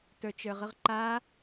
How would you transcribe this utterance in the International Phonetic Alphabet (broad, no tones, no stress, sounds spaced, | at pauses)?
t ə˞ t͡ʃ ə˞ ʁ ɯ ʁ ǃ a